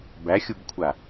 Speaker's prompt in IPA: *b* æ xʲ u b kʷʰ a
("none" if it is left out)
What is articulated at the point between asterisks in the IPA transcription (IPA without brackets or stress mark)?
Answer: b